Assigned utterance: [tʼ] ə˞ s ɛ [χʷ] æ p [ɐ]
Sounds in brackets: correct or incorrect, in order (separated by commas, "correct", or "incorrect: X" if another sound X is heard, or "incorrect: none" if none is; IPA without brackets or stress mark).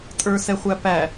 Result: correct, correct, incorrect: æ